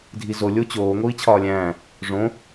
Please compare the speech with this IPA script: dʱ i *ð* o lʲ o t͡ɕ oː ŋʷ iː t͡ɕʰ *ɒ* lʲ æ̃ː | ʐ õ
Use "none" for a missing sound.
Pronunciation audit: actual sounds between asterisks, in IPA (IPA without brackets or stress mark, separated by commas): z, ɒː